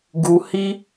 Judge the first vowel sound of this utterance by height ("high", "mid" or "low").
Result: high